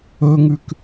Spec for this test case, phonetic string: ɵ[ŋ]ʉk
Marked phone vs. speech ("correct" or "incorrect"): correct